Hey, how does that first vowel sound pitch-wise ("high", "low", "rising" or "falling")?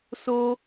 high